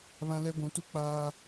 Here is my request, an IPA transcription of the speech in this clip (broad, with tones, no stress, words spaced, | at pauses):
βã˦lɛ˦ ɡʷũ˨˦tu˦ k͡paː˦